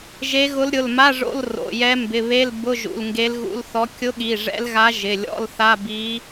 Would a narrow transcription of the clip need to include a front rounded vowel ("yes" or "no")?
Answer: no